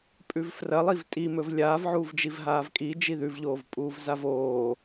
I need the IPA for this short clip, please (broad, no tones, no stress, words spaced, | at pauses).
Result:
pʼʉvfrɐlˠiv tʼimɵv lʲaːv ʕuːvd͡ʒivɦaːvkʼi d͡ʒiðʉvʎoːvpʼuːv zavoː